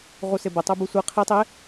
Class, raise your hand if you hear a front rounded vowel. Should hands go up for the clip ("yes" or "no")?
yes